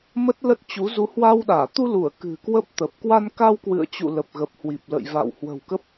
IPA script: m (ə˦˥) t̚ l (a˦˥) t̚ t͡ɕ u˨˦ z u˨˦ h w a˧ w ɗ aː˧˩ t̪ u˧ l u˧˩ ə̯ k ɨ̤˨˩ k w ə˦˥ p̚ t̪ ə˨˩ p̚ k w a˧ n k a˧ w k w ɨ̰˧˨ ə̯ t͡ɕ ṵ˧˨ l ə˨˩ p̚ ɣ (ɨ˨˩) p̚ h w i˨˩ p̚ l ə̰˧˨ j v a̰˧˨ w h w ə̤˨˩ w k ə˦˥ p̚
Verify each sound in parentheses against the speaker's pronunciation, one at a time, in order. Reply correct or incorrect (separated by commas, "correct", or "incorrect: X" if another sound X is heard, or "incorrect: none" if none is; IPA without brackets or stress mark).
correct, incorrect: ə˦˥, incorrect: ə˨˩